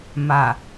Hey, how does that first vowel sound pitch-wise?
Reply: low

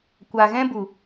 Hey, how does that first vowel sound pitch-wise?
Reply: low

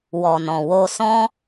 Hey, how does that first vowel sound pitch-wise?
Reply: low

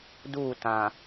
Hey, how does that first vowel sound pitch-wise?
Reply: falling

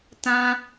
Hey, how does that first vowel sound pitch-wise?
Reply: high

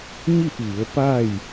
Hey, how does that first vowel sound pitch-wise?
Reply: falling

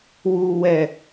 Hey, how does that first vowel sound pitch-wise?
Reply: low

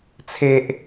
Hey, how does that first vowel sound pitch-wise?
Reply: low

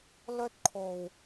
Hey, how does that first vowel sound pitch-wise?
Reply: high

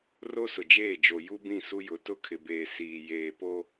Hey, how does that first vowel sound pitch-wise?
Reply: high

